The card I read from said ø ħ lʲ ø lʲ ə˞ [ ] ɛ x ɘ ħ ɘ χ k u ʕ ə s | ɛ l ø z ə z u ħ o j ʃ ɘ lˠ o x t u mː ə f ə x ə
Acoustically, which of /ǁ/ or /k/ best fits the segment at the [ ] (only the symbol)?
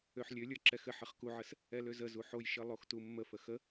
ǁ